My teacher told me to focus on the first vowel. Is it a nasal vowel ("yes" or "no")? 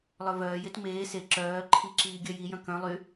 no